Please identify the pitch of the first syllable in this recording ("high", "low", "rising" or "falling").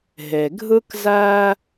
low